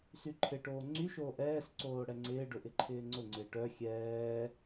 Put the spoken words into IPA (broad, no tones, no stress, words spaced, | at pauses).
syǃʰɪʈoː ŋ͡ǀyʃoː ʔɛːsǀoː ɽɛŋ͡ǀɪːɖʊ ʔɪǃʰɪːŋ͡ǀʊŋ͡ǀɪː ʈœ xʲɛː